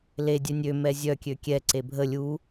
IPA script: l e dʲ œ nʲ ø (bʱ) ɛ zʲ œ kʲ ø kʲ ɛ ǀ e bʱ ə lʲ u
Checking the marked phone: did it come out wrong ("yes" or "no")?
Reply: yes